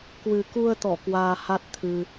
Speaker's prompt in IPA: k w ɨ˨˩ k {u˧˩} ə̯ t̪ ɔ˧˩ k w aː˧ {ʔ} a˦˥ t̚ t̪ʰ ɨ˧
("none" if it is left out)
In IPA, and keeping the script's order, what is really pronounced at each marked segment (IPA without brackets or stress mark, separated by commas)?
u˧, h